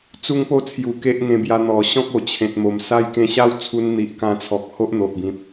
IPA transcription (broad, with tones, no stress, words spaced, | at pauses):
t͡su˦ŋpo˦ t͡sʰju˨˩ ke˦ʔŋẽ˧bja˧ n̪ɔ˨˩ɕɔ̃˦k̚o˨˩ t͡ɕʰẽ˨t̚mo˨˩msa˦j kẽ˧ɕa˦wt͡sʰu˧n n̪i˨ʔkã˧t͡sʰɔ˨k̚ ho˦ʔn̪o˨ʔbĩ˨p̚